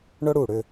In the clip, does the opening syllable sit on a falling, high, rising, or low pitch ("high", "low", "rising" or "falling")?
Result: high